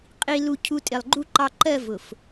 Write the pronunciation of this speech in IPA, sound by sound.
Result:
qʼi˨lu˨ cʰu˨ tʼɪ˨lˠɡ͡ǃu˦ ǃɑ˨ǃɜ˦˨ vʊ˨f

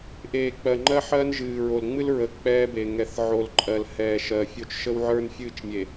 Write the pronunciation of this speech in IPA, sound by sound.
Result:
ʔeː˨k͡pɜ˨ ŋ͡ǃɜ˦ħɜː˦n ʒɨː˨ɹo˨l ŋ͡mɨ˦l ɹə˨ k͡pɛː˦be˨ŋɛ˨θ ʕo˨lǃʼɜ˨lhɛː˨ ʃɜ˨fʲo˦t͡ʃ ʃə˦wʕə˞˦nfʲɨː˦˨t͡ʃ mʲe˨

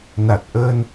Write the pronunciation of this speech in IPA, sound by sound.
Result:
na˨˩t̚ʔəː˧n

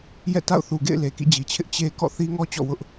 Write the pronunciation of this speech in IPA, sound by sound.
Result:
jɛ̰˦˨ta̰˦˨ʊ̯ θu˨ɡḛ˦˨ɪ̯ le˨kḭ˦˨d͡ʑi˨t͡ɕʰɪ˦ʔ t͡ɕe˦ kɔ̰˦˨θi˦ŋɔ˦ t͡ɕɔ̰˦˨wʊ˦ʔ

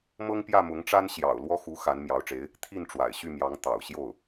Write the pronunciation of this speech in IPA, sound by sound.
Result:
mɤ˥ŋpjä˥˩mʊ˧˥ŋʈ͡ʂa˥n ɕjɑ̰˨˩ʊ̯ lwɔ˥xu˧˥ xa˧˥n mjɑ˧˥ʊ̯ʈ͡ʂe˧˥ɪ̯ | t̪ʰi˥˩nʈ͡ʂwa̰˨˩ɪ̯ɕy˥˩mjɑ˧˥ŋ t̪ɑ̰˨˩ʊ̯ɕjo˥˩ʊ̯

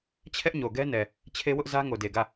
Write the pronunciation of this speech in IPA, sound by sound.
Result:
t͡ɕʰɛ˦ʔɲo˨ɡɛ˦nɛ˨ | t͡ɕʰe˦wʊ˦ʔzä˦ ŋo˨de˨ɡä˦˨

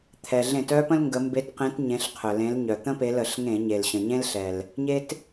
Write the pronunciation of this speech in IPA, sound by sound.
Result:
t̪ʰɛ˩ɮẽ˧˩˧t œ˥pə̃˥l ŋɡə˨˦ mbe˨˦tqẽ˨˦t ɲẽ˨˦ɬqʰœ˩lẽ˨˦l ɲœ˩t̪ə̃˥pe˨˦ lə˧˩˧ɬŋẽ˧˩˧ɲe˩lɕə̃˩ ɲẽ˥lɬɛ˩l | ɲe˥t

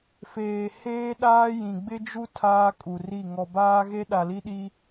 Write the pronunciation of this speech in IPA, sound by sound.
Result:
feː˨ heː˦ɗaː˦ jĩ˨ɡ͡bɪ˦d͡ʒu˦ tʰaː˦kʼu˨ri˦˨ ŋɔ˨baː˦ɣe˦ ɗa˨li˦ɗi˦

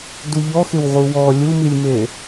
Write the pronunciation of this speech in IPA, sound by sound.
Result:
duʎɔxɪw ʁuwɔ lʲumilʲme

